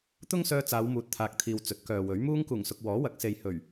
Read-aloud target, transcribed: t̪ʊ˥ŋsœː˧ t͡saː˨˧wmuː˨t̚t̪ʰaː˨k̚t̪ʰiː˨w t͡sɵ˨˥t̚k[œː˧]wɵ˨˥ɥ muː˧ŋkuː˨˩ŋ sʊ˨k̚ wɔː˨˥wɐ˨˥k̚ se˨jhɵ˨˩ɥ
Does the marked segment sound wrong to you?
yes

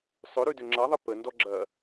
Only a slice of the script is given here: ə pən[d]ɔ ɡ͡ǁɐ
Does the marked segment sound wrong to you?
no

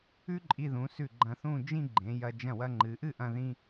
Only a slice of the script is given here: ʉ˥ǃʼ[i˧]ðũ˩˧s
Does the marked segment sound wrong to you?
no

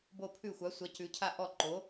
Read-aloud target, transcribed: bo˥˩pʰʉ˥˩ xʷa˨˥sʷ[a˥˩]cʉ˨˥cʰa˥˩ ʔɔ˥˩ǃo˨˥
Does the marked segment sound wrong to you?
yes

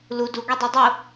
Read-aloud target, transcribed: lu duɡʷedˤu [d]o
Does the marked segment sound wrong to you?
yes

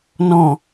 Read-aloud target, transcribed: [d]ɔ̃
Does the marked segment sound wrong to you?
yes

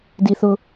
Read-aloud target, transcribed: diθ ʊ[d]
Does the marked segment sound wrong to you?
yes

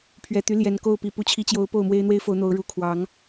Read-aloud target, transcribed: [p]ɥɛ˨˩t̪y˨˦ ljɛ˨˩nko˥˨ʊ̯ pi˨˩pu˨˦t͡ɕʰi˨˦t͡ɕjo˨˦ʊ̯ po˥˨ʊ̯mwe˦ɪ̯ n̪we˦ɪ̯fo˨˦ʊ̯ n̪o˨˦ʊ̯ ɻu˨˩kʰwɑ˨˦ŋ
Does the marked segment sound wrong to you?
yes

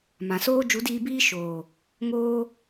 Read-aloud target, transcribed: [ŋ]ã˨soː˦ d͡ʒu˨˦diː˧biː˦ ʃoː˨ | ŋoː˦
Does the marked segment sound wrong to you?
yes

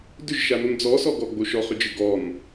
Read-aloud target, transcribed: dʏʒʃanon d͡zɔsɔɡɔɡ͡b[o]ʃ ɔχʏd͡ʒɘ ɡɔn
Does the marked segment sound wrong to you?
no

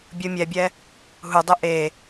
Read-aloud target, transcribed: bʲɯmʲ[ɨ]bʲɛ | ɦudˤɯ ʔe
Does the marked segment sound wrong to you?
yes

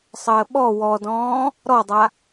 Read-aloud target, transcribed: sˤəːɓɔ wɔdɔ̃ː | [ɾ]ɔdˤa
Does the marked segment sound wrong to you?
no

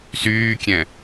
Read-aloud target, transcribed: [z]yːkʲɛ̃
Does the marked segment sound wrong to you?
yes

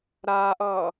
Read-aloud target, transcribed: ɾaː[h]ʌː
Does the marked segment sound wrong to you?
yes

